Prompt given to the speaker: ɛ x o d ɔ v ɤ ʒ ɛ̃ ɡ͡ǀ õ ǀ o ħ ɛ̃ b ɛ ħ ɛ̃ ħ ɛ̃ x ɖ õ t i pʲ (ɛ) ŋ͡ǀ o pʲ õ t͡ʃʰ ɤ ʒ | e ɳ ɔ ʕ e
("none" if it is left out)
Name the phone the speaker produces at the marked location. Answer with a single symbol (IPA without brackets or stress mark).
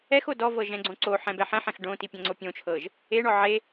ɛ̃